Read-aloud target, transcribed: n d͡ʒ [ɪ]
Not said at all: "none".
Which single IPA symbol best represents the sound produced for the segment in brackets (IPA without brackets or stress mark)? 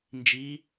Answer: i